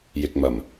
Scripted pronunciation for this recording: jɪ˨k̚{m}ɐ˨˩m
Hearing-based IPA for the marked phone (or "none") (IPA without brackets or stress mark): m